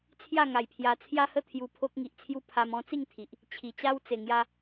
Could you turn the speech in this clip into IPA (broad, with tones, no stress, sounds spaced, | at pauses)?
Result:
t͡sʰ j a˥˧ ŋ a˨˩ j pʰ j a˧ t͡sʰ j a˦ h ə˥˧ t̪ʰ j u˧ pʰ o˦ k̚ ŋ i˨ ʔ t͡sʰ j u˦ pʰ a˧ m ɔ̃˦ t͡s i˥˧ ŋ t̪ʰ i˨ ʔ | t͡ɕʰ i˨˩ t͡ɕ a˦ w t͡s e˨˩ ŋ j a˧